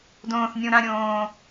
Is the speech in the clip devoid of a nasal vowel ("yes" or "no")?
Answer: no